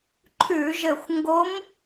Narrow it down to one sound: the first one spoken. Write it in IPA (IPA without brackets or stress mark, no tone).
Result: ǃʰ